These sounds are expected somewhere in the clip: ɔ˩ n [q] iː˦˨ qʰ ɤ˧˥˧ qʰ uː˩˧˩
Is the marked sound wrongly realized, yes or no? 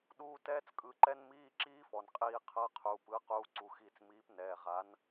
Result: yes